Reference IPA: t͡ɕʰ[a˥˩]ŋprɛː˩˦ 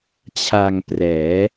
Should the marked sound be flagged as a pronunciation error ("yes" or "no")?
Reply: yes